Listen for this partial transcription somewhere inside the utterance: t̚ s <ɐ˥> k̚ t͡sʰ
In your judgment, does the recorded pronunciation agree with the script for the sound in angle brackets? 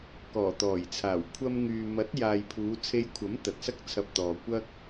yes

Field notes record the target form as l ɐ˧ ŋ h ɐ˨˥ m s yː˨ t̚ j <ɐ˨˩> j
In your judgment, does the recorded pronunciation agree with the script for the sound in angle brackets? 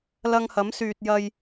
no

